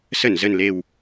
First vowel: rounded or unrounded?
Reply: unrounded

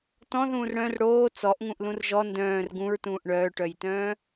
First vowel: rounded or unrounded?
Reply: rounded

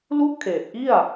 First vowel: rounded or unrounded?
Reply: rounded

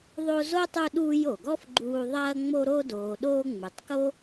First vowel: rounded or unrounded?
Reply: rounded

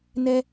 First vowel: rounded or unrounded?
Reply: unrounded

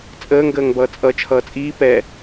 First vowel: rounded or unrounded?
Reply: unrounded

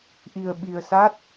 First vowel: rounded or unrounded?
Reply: unrounded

